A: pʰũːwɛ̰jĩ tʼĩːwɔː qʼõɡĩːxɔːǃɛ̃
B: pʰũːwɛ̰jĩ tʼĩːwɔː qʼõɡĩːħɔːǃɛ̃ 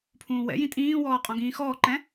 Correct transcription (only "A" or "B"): A